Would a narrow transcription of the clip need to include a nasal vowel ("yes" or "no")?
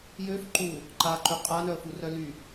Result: no